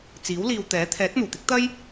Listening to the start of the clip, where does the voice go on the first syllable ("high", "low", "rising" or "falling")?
rising